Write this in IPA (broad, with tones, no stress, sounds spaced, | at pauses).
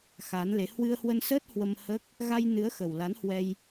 x a˨˦ n l e˨˦ h w ɨ˧ ə̯ h w ə˧ n s əː˦˥ t̚ h w ə˧ m h əː˦˥ k̚ | ɣ a˧ j n ɨ˨˦ ə̯ x ə˨˩ w l a˨˦ n h w ɛ˧ j